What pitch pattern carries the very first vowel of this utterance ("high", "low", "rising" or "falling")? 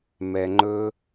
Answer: low